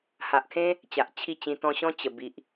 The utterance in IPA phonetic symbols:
h a˨ ʔ kʰ ẽ˦ | t͡ɕ a˨ ʔ t͡ɕʰ i˥˧ t͡ɕ ĩ˧ t̪ ɔ̃˧ ɕ ɔ̃˦ t͡ɕ ə˨˩ b i˨ ʔ

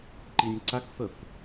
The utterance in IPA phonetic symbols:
ǃ i nʲ ǀ a k θ ɤ θ

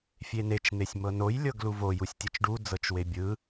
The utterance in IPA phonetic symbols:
fʲ e n e t͡ʃ n̪ e sʲ m ɤ n o j lʲ ɤ ɡ l u v o j u sʲ tʲ ɯ t͡ʃ ɖ u d͡z ɤ t͡ʃ w e bʲ ɯ

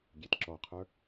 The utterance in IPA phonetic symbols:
ɡʲ e t ǁ ɔ qʰ ə˞

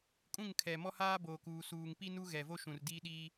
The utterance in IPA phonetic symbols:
kʼ ũ˦˨ ŋ kʰ ɛ˨ m ɔ˦ h aː˦ b oː˨ k uː˨ s uː˨ ŋ p i˦ n u˦ ɣ ɛ˨ v o˦ ʃ ũ˨ r d i˦ ɗ i˦

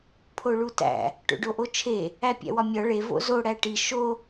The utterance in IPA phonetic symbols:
pʰ o ɭ u t æ̰ | ʈ o̰ ɖ o ʔ o t͡ʃʰ e | æ pʲ æ̰ w ɒ mʲ ɒ ɭ e v o̰ z o ɽ æ ʈ i ʃ o

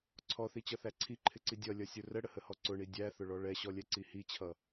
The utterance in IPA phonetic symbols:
ǀʰ ɔ θ i t͡ɕ ʌ θ æ ǀʰ i ǃʰ ɪ ǀ i dʲ ʌ lʲ ʌ sʲ ʊ r ə ɽ ə h ə h ɔ ǀ ʊ ɳ i dʲ æ θ ʊ ɭ ɔ ɭ ɛ ɕ ɔ lʲ ɛ ǀ i h i t͡ɕʰ ʌ

